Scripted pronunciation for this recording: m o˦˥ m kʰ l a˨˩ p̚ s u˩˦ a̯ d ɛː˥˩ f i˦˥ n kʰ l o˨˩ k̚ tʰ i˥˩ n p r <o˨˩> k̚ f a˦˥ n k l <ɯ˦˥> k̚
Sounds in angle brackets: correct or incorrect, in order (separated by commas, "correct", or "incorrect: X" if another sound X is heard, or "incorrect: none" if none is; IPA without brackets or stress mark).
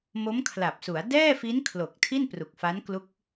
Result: incorrect: u˨˩, incorrect: u˦˥